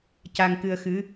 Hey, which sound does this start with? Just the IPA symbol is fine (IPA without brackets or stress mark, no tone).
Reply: c